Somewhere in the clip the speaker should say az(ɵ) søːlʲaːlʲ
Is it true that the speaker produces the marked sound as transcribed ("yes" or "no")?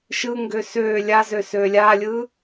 no